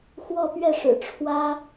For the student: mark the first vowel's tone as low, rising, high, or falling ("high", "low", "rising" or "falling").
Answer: falling